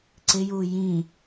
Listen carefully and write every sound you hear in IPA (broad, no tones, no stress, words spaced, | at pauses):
ǀɪju jĩ